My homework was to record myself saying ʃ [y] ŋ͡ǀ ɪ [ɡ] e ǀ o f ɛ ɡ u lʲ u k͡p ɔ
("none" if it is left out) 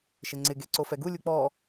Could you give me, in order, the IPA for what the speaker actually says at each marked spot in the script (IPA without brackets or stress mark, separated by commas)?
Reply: ɪ, ɡ